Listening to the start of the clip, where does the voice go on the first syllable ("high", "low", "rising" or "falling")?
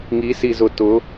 rising